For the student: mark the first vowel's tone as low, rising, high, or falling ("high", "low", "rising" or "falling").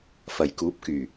low